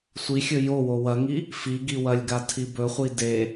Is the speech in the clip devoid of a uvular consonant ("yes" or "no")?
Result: no